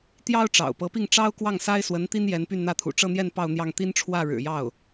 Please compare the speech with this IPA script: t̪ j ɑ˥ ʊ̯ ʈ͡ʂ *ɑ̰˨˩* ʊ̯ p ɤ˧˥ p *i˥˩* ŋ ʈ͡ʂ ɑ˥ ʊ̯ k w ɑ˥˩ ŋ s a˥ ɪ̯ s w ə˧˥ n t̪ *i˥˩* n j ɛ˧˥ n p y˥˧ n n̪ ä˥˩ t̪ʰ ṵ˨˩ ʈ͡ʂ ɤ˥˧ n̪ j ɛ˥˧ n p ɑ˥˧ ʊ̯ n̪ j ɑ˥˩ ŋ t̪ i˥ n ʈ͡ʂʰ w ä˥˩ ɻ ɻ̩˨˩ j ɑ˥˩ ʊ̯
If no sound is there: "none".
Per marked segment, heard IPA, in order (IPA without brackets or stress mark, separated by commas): ɑ̰˨˩, i˥˩, i˥